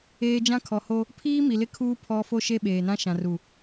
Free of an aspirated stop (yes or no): no